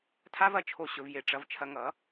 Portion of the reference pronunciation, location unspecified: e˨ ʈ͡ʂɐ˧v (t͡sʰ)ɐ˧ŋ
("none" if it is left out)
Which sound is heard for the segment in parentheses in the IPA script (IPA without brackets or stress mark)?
t͡ʃʰ